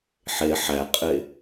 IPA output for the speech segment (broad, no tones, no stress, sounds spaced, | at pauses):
ħ e ħ æ qʼ e